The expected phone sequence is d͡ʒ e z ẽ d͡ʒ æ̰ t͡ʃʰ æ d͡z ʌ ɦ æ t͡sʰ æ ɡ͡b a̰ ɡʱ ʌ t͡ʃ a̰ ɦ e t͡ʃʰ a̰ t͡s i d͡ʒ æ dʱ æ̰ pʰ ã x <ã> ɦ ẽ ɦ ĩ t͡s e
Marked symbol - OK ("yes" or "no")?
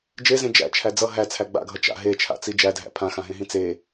yes